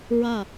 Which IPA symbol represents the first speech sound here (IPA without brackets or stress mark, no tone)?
ɹ